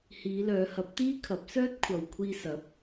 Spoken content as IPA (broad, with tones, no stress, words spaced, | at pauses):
hiː˨˧lœː˨˧ hɐ˨˥p̚ t̪iː˥kʰɐ˨˥p̚ sœː˥t̚kʷʰɐ˨w kʷʰiː˧sɐ˨˥p̚